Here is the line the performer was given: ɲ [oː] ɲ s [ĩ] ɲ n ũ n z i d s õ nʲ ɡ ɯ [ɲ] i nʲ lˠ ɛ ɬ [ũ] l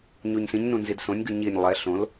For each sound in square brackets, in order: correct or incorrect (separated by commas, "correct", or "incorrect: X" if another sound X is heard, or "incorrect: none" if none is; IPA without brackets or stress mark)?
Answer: incorrect: o, correct, correct, incorrect: õ